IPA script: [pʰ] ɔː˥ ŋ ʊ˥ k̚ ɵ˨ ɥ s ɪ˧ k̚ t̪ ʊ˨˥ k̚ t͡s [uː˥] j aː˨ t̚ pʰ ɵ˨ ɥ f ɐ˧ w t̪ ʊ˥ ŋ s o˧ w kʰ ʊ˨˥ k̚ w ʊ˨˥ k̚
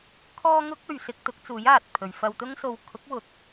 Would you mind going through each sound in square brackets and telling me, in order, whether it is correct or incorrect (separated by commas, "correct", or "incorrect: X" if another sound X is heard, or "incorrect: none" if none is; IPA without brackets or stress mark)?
incorrect: kʰ, incorrect: uː˨˥